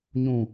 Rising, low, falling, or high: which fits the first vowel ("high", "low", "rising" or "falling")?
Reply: low